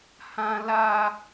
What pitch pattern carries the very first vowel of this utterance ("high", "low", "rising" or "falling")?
high